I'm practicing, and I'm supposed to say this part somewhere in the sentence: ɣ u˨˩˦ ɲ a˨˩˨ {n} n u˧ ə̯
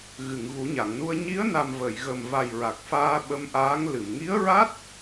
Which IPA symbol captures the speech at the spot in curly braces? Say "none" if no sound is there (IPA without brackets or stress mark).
ŋ